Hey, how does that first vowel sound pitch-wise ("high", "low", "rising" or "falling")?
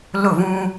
falling